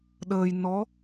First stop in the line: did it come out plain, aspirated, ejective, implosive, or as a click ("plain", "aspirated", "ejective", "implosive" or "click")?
implosive